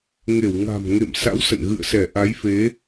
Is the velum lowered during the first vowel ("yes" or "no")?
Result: no